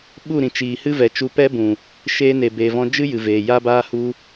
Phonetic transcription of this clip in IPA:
ɓ u˦˨ ɾ ĩ˨ t͡ʃ iː˨ h ɨ˦ v ɛ˨ t͡ʃ u˧ p ɛ˦ b ũ˨ | ʃ eː˧ n e˨ b e˨ v ɔ̃˧ d͡ʒ ɨ˦ j ɨ˨ v eː˨ j a˧ b aː˧ h u˧

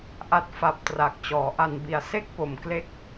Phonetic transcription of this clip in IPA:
ʔ a˥˩ t̚ f a˦˥ p̚ t r a˨˩ k̚ t͡ɕ ɔː˩˦ ʔ a˧ n b i˧ a̯ s e˥˩ k̚ p o˩˦ m k l e˥˩ k̚

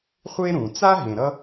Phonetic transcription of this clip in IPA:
χʷ e˦ ɾ ũ˨ t͡s a˦ ɦ ẽ˨ ɾ ʌ˦

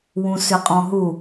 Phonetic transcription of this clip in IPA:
w ũ s ʏ qʼ ɔ̃ ɦ u

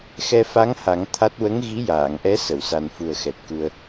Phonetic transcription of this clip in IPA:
x ɛ˧ f a˧˥ ŋ h a˨˩˦ ŋ t̪ʰ a˦˥ t̚ w ə˧˥ ŋ ɣ i˧˥ j aː˨˩˨ ŋ ʔ ɛ˧˥ s ə˨˩˨ w s a˨˩ n f u˨˩ ə̯ x ɛ˨˩ t̚ k u˧ ə̯

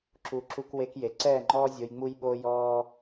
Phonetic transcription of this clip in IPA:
ǁ u˨ ǁ u˧ k w e˧ k j e˨ ǀ ɛː˦˨ ŋ͡ǃ ɔː˦ zʲ o˧ j ŋ͡m u˦ j ɓ o˦ j ɔː˦

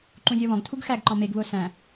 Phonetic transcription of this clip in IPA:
ǃ ũ zʲ ɔ β ɔ̃ ɡ tʰ u ɡ x æ ɡ ǃ ɔ̃ m e ɡ β ʊː s æ̃

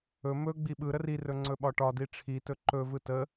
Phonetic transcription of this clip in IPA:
ɵ m ɵ ɡ͡b i ɓ ɯ ɾ ə r i r ɵ ŋ͡ǀ ɵ ɓ ɒ ʈ ɒ d i ʈ͡ʂʰ i t ɵ ǃ ɵ v ɯ t ə

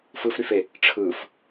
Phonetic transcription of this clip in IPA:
f ɯ f ɾ y f e | ʈ͡ʂʰ ɯ f

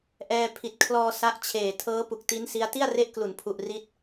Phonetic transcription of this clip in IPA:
ʔ ɛː˧ pʰ i˨˩ t̚ kʰ l ɔː˧ s a˦˥ ʔ t͡ɕʰ eː˨˩ tʰ ɤː˦˥ p u˨˩ k̚ t i˦˥ n s i˦˥ a̯ t i˥˩ a̯ r e˦˥ ʔ k l u˩˦ n pʰ u˨˩ ʔ r i˦˥ t̚

